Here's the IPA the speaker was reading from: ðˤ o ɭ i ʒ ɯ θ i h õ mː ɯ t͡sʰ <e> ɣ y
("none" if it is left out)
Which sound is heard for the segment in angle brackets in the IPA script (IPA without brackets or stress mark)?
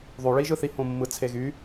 e